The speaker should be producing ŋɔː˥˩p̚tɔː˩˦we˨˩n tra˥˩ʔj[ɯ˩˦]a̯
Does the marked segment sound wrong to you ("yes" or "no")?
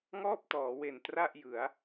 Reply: no